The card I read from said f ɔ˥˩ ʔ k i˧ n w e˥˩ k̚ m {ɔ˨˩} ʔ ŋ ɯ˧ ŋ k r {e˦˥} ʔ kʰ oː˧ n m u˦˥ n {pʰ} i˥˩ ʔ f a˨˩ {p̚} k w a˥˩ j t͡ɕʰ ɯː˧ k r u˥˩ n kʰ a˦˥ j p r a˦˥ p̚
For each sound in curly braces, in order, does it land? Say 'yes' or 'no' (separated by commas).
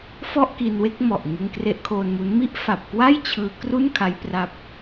yes, yes, no, yes